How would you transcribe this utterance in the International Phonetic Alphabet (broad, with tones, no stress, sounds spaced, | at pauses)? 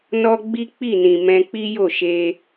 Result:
n ɔ˦ ɡ͡b i˦ k͡p i˦˨ n ĩ˨ m ɛ̃˧ k͡p i˦ j o˦˨ ʃ e˧